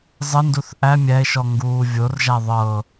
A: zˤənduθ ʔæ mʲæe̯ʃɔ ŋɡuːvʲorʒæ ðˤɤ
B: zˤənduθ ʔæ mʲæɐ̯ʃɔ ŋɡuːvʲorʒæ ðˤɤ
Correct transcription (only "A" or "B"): A